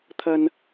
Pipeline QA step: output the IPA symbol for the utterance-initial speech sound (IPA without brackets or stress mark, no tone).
t̪ʰ